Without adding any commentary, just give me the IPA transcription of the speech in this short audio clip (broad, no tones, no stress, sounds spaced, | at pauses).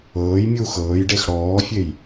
ɤː j mʲ uː x ɤː j ɖ e x ɽ ɔː fʲ e j